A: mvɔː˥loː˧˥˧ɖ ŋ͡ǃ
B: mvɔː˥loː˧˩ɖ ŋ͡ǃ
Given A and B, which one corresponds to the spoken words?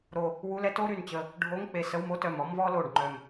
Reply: B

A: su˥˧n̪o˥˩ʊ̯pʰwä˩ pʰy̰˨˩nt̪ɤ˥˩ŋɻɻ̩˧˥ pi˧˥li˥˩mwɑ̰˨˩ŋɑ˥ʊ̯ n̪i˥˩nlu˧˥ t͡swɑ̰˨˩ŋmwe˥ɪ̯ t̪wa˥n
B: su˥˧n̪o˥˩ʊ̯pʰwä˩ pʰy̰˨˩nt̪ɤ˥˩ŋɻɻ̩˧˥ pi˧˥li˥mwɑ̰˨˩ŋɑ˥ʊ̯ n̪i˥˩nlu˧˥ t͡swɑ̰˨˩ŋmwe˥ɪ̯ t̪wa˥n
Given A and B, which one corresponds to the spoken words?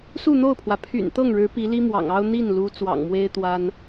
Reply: B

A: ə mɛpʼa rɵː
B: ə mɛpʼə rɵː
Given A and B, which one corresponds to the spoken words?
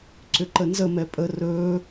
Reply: B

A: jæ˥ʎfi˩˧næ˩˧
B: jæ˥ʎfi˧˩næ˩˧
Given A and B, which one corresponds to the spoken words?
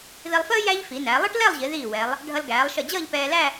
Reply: A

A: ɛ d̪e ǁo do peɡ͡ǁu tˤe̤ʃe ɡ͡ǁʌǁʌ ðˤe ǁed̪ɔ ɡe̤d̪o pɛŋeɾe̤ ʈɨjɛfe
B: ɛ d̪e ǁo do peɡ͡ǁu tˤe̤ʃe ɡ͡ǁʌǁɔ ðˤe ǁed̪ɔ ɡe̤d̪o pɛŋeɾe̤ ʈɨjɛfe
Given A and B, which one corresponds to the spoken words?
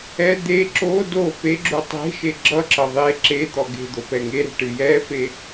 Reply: A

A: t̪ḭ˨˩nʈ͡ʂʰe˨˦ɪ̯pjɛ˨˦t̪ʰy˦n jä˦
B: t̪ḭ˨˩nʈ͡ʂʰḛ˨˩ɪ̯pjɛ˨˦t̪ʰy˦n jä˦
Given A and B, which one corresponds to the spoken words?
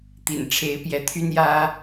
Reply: A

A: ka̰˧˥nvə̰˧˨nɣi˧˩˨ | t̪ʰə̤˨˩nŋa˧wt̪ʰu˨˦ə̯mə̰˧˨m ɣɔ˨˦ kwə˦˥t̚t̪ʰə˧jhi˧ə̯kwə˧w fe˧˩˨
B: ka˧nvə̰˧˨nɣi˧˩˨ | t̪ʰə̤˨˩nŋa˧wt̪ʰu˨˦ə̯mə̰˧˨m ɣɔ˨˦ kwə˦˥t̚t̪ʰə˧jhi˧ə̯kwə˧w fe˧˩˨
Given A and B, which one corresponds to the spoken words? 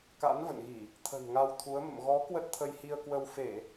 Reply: A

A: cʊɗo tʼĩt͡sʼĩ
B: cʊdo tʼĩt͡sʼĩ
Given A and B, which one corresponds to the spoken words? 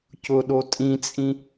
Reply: A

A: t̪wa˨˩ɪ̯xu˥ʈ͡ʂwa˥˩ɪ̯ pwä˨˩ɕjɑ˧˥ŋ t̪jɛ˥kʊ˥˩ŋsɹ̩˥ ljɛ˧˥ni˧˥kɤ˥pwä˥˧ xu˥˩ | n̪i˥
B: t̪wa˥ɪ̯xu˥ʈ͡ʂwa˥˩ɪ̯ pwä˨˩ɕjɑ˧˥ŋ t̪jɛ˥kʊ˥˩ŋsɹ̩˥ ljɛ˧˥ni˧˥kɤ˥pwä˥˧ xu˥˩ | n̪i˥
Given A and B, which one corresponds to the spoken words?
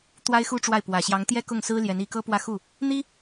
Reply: B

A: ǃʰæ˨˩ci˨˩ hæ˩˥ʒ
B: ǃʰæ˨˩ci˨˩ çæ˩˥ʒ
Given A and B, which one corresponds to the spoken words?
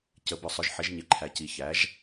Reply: B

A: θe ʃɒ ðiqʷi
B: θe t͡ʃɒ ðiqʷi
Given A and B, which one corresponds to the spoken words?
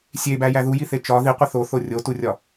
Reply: B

